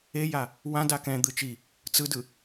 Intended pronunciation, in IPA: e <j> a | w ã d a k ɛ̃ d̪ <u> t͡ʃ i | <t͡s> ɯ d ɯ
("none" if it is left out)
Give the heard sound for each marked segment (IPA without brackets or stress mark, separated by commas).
j, ɯ, t͡s